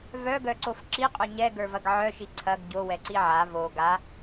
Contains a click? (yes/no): yes